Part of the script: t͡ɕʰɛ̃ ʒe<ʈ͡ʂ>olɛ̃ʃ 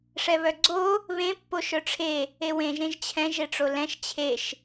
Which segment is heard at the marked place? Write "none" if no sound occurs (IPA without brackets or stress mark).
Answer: ʈ͡ʂ